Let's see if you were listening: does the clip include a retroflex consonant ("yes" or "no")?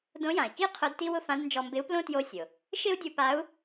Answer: no